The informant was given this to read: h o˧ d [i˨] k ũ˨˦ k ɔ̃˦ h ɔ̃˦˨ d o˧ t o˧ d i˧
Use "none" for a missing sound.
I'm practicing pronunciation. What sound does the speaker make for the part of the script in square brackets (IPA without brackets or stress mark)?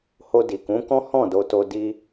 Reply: i˨